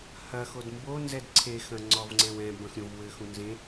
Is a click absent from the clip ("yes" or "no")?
no